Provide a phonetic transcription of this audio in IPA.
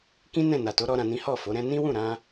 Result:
k ĩ˦ n ɛ̃˦˨ n a˨ t o˨˦ ɾ ɔ˦ ɾ ã˧ n ĩ˦ h ɔ˦˨ f o˨˦ ɾ ɛ̃˦ n ĩ˦ w ũ˦˨ ɾ ã˧

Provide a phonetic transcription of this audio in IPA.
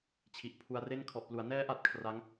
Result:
t͡ɕʰ i˨˩ ʔ pʰ u˧ a̯ r e˥˩ n kʰ ɔ˨˩ ʔ p l u˩˦ a̯ n ɛː˦˥ ʔ a˨˩ t̚ kʰ r a˦˥ ŋ

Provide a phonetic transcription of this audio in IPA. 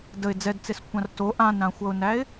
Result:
d ə ɪ̯ d͡z ɛ d t͡s e s kʷʰ ã r t o ʔ ã n ɾ ã xʷ ʌ ʊ̯ n æ ɪ̯

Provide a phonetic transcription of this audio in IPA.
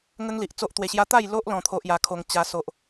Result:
ŋ ə˦ ŋ l i˨ ʔ t͡s o˦ ʔ t̪ w e˧ ɕ j a˦ t̪ a˥˧ j l o˦ ʔ l ɔ̃˧ t̪ʰ o˦ ʔ j a˧ kʰ o˧ ŋ t͡ɕ a˦ s o˦ ʔ

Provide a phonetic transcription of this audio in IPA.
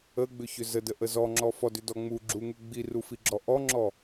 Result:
ə ɡ͡b ʏ ç ʏ z ə d ə ʔ ə z ɔ ŋ͡ǁ ɔ f ɔ d ʏ d ɔ ŋ͡m u ɡ͡ǁ u ŋ u ɡ͡b i r u f i ɡ͡ǁ ɔ ʔ ɔ ŋ͡ǁ ɔ

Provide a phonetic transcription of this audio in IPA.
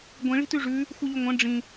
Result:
ɡʷ ĩ ɭ i̤ t ʉ ʐ ʉ | xʷ ɨ ʎ ʉ ŋʷ ɐ̃ ɖ͡ʐ ĩ

